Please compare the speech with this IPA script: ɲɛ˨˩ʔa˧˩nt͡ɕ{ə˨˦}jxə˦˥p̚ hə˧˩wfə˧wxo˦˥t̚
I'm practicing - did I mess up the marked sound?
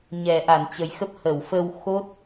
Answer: yes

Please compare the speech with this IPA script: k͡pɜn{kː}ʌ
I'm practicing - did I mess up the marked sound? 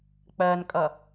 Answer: yes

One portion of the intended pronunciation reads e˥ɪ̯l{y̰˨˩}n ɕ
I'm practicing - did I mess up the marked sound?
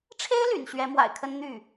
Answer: no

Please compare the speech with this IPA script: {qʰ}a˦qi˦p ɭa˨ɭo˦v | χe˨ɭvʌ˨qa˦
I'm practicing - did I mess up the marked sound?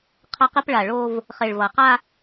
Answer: no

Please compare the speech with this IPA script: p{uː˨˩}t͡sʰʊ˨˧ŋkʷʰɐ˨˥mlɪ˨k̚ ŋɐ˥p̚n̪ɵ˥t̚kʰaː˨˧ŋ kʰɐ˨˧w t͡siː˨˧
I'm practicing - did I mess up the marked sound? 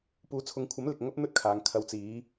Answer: yes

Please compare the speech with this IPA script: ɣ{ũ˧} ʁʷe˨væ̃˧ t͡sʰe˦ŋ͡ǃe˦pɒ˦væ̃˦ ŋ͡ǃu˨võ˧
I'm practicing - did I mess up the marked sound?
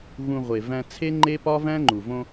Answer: no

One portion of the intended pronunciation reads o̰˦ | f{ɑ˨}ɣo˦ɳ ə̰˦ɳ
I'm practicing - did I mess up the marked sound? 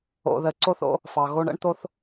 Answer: no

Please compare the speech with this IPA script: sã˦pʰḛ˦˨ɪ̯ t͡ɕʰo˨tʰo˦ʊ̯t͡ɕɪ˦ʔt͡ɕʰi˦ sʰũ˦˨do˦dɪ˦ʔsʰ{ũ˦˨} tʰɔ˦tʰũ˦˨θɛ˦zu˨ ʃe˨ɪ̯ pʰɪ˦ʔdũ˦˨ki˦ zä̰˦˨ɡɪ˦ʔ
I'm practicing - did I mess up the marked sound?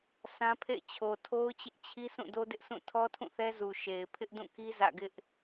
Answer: no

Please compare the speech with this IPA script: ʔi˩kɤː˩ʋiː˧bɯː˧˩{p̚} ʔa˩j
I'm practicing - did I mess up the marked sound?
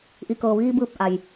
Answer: no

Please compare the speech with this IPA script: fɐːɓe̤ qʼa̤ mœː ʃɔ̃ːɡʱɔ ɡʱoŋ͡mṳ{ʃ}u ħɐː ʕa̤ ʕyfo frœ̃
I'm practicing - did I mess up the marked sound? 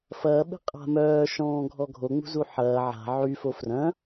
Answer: yes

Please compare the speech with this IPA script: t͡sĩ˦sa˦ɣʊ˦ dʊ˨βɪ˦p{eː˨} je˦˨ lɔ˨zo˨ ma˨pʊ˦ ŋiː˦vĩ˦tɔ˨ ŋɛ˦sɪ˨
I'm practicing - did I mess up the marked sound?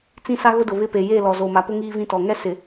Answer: yes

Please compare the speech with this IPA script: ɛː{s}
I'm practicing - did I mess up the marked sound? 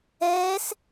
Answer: no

